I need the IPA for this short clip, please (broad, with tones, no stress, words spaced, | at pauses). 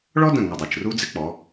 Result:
ɭɔ˥də̃˧˩ ŋə˧˩dˤe˧˩t͡ʃru˥ d͡zɪ˥k͡pɔ˩˧